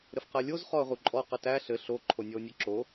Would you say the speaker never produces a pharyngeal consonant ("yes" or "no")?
yes